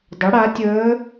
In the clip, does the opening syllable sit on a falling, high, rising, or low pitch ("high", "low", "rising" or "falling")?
rising